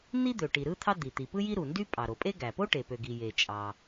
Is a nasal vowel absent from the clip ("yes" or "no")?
yes